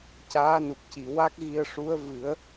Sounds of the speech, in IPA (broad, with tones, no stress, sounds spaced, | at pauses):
c aː˧˥ n u˨˩ k̚ c i˨˩˨ w a˦˥ k̚ ɣ i˧ ə̯ ʂ u˧˥ ə̯ v ɨ˨˩˦ ə̯